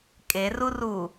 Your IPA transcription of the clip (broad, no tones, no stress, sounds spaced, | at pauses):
kʼ e r u r u